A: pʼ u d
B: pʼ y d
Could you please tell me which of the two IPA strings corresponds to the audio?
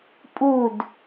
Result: A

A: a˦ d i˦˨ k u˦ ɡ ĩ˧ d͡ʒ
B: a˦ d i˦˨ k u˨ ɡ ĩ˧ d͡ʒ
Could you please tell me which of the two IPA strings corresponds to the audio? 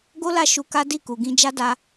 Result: B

